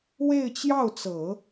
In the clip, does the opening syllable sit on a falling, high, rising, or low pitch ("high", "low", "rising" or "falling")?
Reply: falling